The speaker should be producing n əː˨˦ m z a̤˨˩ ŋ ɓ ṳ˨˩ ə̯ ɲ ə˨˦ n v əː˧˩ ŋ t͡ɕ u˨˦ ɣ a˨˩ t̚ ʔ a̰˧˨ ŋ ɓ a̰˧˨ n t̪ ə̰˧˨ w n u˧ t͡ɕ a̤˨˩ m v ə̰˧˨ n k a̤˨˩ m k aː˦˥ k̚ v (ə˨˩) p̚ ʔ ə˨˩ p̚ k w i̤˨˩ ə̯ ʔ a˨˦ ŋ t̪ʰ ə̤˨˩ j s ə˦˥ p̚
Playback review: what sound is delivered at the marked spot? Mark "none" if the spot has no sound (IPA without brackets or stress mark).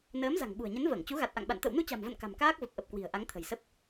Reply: ə˨˩